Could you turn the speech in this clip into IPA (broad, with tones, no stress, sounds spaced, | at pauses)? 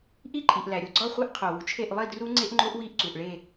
ʔ i˥˨ ǃʼ i˩ ʔ l æ˩ ɾʲ o˩ ɡ͡ǀ ɒ˥˨ χʷ e˦˥ ʔ qʰ o˩ w u˩ t͡ʃʰ e˥˨ ʔ lˠ i˥˨ d r u˦˥ ŋ͡ǀ e˦˥ ʔ ŋ͡ǃ o˦˥ ʔ w i˥˨ ʔ ǀ u˩ ʔ ɭ e˥˨